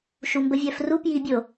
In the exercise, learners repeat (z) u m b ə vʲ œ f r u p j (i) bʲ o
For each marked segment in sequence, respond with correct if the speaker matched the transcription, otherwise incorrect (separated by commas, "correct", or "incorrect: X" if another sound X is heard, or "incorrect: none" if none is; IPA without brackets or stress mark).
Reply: incorrect: ʃ, correct